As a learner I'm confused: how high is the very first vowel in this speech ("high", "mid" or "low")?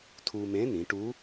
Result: high